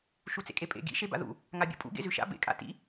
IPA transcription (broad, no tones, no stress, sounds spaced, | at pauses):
ʃ u t͡s ḛ kʼ e pʼ ḛ ɡ ḭ ʃ e b a̰ ð ṵ | ŋ a bʲ ṵ pʼ ṵ ɡ ḛ z ʉ ʃ a̰ b ḛ kʼ a̰ t ḭ